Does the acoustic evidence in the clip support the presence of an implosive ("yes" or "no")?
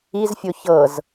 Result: no